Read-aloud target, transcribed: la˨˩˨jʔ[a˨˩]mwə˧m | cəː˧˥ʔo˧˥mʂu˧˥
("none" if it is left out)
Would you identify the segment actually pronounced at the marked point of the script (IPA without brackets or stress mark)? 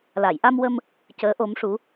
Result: a˧